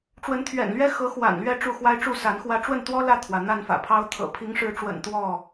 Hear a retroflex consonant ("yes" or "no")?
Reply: yes